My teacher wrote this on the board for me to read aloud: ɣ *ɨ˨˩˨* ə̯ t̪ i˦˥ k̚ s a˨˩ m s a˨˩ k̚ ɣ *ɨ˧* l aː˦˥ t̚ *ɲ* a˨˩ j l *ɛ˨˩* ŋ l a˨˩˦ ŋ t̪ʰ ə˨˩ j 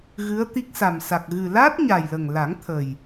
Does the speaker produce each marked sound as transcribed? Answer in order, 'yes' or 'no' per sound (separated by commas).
no, no, yes, no